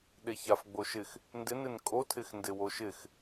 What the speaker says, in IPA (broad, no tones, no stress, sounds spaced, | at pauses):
ɗ e ç a f ɡ͡b o ʃ ɪ x | n d ɪ n ɪ n kʼ o tʰ ɪ x n d ɪ w o ʃ ɪ x